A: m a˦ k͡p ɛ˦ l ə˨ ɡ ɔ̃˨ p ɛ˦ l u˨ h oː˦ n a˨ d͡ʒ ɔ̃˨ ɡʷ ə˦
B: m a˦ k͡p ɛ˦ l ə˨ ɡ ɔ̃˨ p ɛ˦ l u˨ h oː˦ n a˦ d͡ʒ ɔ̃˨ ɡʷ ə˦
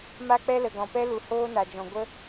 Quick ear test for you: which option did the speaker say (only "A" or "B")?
A